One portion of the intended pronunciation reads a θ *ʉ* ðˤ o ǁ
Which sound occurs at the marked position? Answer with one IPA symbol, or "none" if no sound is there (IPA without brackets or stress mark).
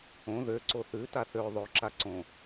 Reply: ø